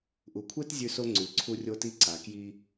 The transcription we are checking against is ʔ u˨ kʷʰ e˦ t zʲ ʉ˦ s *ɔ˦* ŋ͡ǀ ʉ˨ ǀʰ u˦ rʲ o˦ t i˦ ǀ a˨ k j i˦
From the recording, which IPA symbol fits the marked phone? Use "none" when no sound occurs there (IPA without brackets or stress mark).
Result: o˦